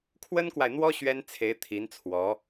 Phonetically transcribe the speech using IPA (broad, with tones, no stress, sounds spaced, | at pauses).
kʰ w ə˥ n k w a˨ ɪ̯ n̪ w ɔ˥ ɕ ɥ ɛ˥ n t͡sʰ e˧˥ ɪ̯ t̪ʰ i˧˥ n t͡sʰ w ɔ˧˥